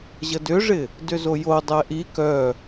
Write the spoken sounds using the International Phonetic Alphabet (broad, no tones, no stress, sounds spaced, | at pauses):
ʑ ə d ʏ ʐ ɪ | d ʏ z o j o dˤ ɛ ʔ i k œ